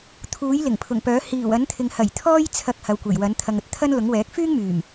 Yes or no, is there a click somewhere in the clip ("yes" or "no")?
no